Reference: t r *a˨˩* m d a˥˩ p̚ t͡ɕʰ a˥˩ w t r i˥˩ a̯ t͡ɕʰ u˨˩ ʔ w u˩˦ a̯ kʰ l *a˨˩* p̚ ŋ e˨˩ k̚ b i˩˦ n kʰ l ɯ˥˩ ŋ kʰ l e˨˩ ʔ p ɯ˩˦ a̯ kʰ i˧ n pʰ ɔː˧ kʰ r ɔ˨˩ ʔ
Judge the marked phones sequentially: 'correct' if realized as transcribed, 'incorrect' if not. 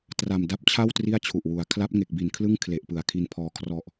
correct, incorrect: a˦˥

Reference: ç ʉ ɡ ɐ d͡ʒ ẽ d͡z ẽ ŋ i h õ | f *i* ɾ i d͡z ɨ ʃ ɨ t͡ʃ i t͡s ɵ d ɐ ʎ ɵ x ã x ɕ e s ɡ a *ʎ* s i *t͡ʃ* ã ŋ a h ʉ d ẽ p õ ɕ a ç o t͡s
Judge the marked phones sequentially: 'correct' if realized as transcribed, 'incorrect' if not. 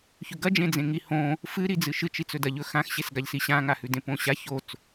incorrect: ɨ, correct, incorrect: ɕ

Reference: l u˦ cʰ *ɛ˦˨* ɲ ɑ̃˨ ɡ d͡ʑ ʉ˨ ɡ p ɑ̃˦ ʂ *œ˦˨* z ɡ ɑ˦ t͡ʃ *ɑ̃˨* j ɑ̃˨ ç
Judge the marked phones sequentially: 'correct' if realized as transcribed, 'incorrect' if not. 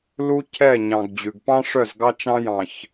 correct, correct, incorrect: ɑ̃˦

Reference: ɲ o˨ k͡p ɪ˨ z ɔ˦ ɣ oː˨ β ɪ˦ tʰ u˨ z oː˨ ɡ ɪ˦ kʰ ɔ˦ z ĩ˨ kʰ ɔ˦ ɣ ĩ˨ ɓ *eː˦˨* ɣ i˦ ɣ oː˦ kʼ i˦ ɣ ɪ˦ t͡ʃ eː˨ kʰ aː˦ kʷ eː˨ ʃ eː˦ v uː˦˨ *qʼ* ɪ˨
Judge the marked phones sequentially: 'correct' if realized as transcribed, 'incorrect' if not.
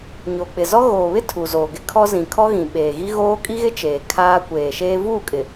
incorrect: eː˨, incorrect: kʼ

